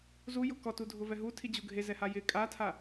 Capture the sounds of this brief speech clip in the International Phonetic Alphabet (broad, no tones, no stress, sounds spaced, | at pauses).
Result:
z u j ʊ k ɔ t u dʱ ʊ v ɛ ɦ u tʰ i d͡ʑ u ɡʱ e z ɛ h a j ɪ kʼ a tʰ a